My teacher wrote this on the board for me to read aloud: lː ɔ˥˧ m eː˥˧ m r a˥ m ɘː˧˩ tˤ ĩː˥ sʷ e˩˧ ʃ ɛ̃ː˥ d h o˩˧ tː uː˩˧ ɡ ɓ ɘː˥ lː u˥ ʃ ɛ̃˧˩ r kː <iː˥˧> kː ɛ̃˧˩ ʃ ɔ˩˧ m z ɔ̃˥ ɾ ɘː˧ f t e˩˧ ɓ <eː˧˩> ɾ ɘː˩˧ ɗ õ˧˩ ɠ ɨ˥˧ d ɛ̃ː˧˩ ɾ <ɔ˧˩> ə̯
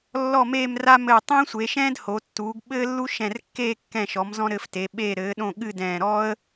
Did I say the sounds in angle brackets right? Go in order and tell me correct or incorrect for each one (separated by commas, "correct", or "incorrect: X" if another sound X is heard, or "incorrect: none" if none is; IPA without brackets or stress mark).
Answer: incorrect: eː˥˧, correct, incorrect: ɔ˥